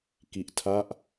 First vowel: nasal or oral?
oral